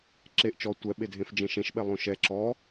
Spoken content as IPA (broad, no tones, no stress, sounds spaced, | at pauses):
ǁ e ʔ t͡ʃ ɔ tʷ ɛ ɓ e dʱ ẽ f d͡ʒ ẽ ʃ ẽ ʃ ɓ ɛ lˠ õ ʃ ɛ ǁ ɔ